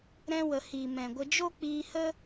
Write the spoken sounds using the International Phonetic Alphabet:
ɾɛ̃˧wə˨hiː˨ mɛ̃˨ɡʷə˧ d͡ʒo˦k͡piː˧hə˦

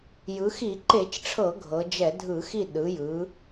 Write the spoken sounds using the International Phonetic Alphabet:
jɯ˩˧xi˧˩˧ǃe˧˩˧t͡ʃʈ͡ʂʰɤ˧˩˧ ɡʱɤ˩˧d͡ʒɛ˧˩˧dʱɯ˧˩˧xi˦˨ ɗɯ˩˧jɯ˩˧

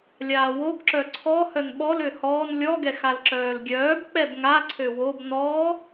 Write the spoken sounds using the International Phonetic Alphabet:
lʲaːwobǁœ ǀʰɔ hœnɓɔlø hɔːn lʲɔɡɛx alǁœːlɡʲœːbk͡pɛb ŋaǀʰø wob nɔː

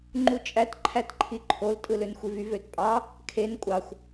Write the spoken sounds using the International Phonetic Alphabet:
ŋ͡ǃut͡ʃʼæt ǃʰætǃʰiǃʰol tʼɯlønxʷivyv øtpʼɑ | kʰen kʷʼɑxʷ

